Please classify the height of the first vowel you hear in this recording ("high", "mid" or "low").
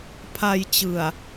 low